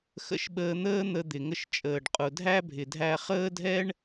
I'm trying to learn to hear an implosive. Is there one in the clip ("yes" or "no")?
yes